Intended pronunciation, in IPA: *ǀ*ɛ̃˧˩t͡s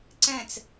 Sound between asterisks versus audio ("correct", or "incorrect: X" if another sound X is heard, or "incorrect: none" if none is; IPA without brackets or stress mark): correct